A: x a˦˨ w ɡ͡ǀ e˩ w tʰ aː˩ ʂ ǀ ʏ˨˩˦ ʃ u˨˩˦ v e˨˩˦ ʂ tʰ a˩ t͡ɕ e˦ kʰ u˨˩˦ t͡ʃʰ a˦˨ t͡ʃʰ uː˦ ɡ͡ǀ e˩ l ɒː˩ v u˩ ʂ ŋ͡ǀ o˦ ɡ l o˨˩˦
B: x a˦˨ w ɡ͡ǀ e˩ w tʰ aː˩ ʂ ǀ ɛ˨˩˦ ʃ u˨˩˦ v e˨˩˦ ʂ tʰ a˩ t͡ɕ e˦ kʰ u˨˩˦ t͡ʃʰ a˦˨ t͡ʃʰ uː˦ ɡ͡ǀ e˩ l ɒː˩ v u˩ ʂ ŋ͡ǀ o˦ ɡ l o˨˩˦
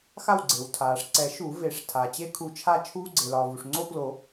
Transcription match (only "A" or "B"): B